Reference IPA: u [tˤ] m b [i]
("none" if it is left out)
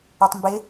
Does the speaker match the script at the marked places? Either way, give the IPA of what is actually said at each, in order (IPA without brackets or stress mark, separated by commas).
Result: tˤ, ɪ